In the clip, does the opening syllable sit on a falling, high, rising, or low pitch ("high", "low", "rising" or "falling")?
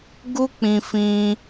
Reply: high